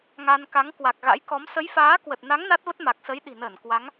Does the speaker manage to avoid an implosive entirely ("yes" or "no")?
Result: no